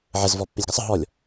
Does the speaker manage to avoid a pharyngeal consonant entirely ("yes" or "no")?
no